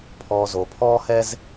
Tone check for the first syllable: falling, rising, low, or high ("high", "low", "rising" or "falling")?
low